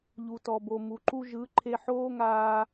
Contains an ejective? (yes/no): no